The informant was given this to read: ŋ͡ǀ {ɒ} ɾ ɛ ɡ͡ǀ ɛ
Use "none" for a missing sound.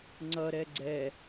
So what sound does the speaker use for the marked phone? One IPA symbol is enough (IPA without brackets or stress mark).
ʌ